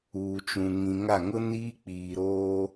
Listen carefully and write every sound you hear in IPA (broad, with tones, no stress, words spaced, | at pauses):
uː˨t͡ʃũ˨ŋĩ˨ŋa˦˨ ŋʊ˦niː˦k͡piː˨ɾoː˦